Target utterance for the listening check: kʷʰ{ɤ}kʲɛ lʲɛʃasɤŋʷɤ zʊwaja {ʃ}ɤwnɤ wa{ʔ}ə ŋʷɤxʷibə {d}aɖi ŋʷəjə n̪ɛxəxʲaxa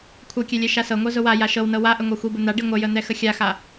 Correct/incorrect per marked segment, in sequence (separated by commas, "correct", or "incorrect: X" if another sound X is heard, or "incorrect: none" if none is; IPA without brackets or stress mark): correct, correct, correct, incorrect: n̪